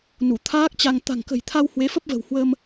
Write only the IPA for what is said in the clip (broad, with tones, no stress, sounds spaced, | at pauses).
n u˧˩ t̪ʰ aː˦˥ k̚ t͡ɕ a˧ ŋ t̪ a̤˨˩ ŋ k ə̤˨˩ j t̪ʰ a˧ w h w e˨˦ f ə˦˥ p̚ v ə̤˨˩ w h w ə˧ m